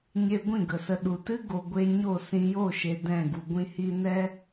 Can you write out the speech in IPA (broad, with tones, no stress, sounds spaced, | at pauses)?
ɲ e˧ ɡʷ ĩ˦˨ ɡ ə˨ s ə˧ ɗ u˨ t ɨ˦ ɡ o˨ ɡʷ e˧ ɲ o˦˨ s ĩ˧ j o˦˨ ʃ e˨ d ɛ̃˦˨ ɡ u˨ ɡʷ ĩ˦ h i˦ n ɛ˦